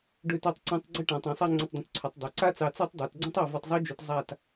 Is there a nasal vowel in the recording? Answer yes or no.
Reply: yes